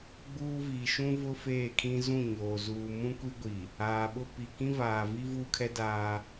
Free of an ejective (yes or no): yes